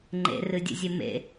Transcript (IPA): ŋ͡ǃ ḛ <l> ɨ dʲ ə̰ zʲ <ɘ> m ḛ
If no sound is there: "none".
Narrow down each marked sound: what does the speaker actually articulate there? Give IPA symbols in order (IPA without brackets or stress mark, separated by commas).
r, ɘ